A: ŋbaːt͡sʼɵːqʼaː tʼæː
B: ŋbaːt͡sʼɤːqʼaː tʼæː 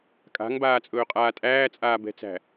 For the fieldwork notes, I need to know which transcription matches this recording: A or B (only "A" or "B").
A